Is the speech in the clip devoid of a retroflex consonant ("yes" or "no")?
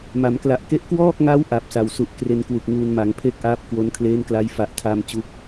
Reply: yes